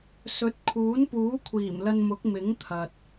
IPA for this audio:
sɵ˨˥t̚kʰuː˨˥npuː˨˥ kʷʰiː˨˩mlɐ˧nmʊ˨˥k̚ mɪ˨˥ŋt̪ʰɐ˨t̚

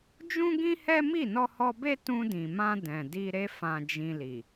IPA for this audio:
d͡ʒũ˦ɡĩ˦hɛ˦ mi˦˨nɔ˧hɔ˧be˦ tũ˧dĩ˨mã˧ dɛ̃˨di˧ɾe˦ fã˧d͡ʒĩ˧li˨

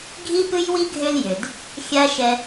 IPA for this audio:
ɡʱi˥pɨ˥jwi˥ɡʱø˦l jø˨d | xʲa˥ ʃɛ˥

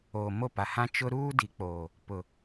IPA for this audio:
oː˨ mo˦˨pa˨hã˦ t͡ʃʊ˦ ɾuː˦di˨k͡poː˨ | pʊ˨

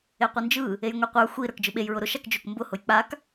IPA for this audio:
eqʷɯnd͡ʒɯ | ejŋʷiqʷə˞ xʷi ɾə˞kd͡ʒɯɓej ɹʊɾʊʃ akd͡ʒʊk mbʊ hʊjk͡pak

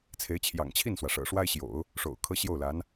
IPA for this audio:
t͡sʰe˧˥ɪ̯t͡ɕʰjɑ̰˨˩ŋt͡ɕʰi˥˩nswä˩ ʂɤ̰˨˩ʂwa˥ɪ̯ɕjo̰˨˩˦ʊ̯ | ʂo̰˨˩ʊ̯kʰɤ˥ ɕjo˥˩ʊ̯la˧˥n

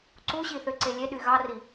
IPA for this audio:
ǀuɕiθøǀe lʲeɗy ɣɑri

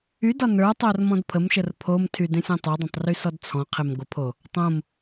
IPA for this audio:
ydɒ nə˞tˤœr mɔ̃dpʰəmʃər pʰomtʰy dẽsʲõtˤodˤẽtˤ rysɔdt͡sʰɔ̃qʰem ɡʷəpʰo | tˤõm

